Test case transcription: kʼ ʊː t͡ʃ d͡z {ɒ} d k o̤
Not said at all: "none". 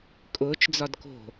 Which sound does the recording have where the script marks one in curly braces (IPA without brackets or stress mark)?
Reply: ɒ